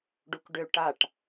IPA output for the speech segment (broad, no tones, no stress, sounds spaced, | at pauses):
ɖ u k ɖ ø ʈ a ʈ